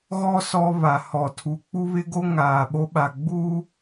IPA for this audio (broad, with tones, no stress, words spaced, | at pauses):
ɣɔ˦ sɔ˦βa˨hɔ˨ tʰu˨k͡pu˦βɪ˦ɡo˦ ŋaː˨ɓo˦ɓa˨ ɡ͡bu˦